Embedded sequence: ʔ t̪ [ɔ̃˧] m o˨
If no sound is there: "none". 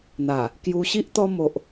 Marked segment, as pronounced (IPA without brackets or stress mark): ɔ˧